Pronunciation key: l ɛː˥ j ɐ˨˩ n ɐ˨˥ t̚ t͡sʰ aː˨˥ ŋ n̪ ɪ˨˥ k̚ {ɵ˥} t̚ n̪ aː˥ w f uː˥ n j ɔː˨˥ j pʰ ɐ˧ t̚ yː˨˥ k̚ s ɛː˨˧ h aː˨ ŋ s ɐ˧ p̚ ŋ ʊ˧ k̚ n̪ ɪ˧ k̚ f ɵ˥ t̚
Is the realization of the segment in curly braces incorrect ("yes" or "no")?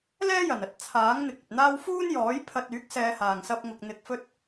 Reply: yes